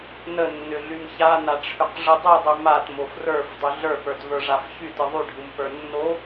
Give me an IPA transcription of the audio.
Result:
nənːʏɮym çanaʈ͡ʂʰʏqʐɯ dˤɯdˤy matmof rə˞fdˤɯ ɮə˞pə˞tvə˞ʐaf çytɯ ðˤyɖʱɯmpə˞ nːo

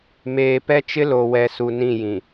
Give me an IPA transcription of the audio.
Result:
meː˨pɛ˦t͡ʃɪ˦ lo˨ wɛ˨su˨ nĩ˦˨jĩ˨

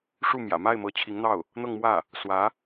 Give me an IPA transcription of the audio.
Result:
ʂu˥˩mjä̰˨˩ ma˥˩ɪ̯mɤ˧˥ t͡ɕʰi˧˥ŋn̪ɑ˥˩ʊ̯ | n̪ɤ˥˧ŋmwä˥˩ | swä˧˥

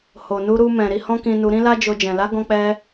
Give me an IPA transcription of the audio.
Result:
ho˨nu˧ɾu˧mɛ̃˨ ɾi˧hɔ̃˦kĩ˧nu˧ ɾĩ˦la˦d͡ʒo˧d͡ʒɛ̃˨ la˨˦ɡɔ̃˧k͡pɛ˧

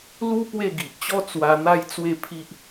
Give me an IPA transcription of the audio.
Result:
lu˦ pwe˥˧ɡi˨ʔt͡ɕɔ˦ t͡swa˧ n̪a˦jt͡swe˥˧pʰi˦ʔ

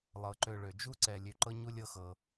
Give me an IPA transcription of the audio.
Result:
lˠɤ˩ǃø˨ ɭø˩d͡ʒu˥ǀɛ˨ lʲø˨ǃɤ˦ɲu˦ lʲɤ˦xɤ˩

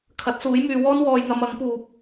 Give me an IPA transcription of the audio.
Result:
kʰɐ˨˥t̚suː˨˥jmyː˨˧wɔː˥n wɔː˧jŋɐ˧m ɐ˨˥ŋpuː˨p̚

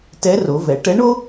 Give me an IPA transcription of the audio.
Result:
tɛ˧˥ro˩˧vɛ˩˧ ʈɛ˧˥ɳo˥

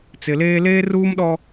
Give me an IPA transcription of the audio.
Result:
t͡sɪ˨leː˦ leː˦ruː˦mɗɔ˦

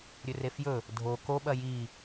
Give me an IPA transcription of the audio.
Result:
ɾʲɵrefjɵ | dʱo ko ɓɐji

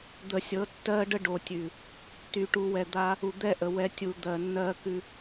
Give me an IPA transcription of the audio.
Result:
d̪ə˨sʲɤ˨˦tːɜ˦ɖə˦ ɖo˨tʲʉ˨ | ty˨ʈu˨wɛ˨d̪a˦ | u˨d̪ɛ˦˨ʔə˨ wɛ˦ tʲu˨ d̪ɜ˨nːɜ˦kʉ˦

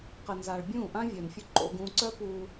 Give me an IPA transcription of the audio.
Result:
qə˧nza˧ɭ bʲũː˦˨ʔã˦vʲœː˨nfʲu˧ ǃo̰˧ɡ ũː˧ ǀœ˦puː˧

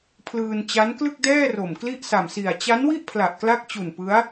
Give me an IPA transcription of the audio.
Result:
pʰlɯː˧nt͡ɕa˦˥n klɯ˥˩k̚dɛː˥˩ ro˨˩mkli˥˩ʔsa˨˩msi˨˩a̯ t͡ɕa˦˥nwi˥˩ʔ pʰla˨˩ʔkla˦˥k̚t͡ɕu˨˩n pɯ˦˥a̯

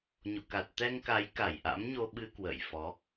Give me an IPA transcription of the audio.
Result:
ɲo̰˧˨ka˨˩t̚ t̪ɛ˧ŋka˨˦j ka˧˩jʔa̰˧˥mɲo˧ɓɨ˧ kwə̰ː˧˨jfɔ˨˦

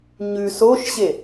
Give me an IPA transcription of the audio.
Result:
ɲʉ soʃɕe

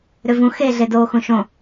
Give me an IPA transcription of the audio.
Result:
ɾʏvũ xeɮedoː xũʃõ

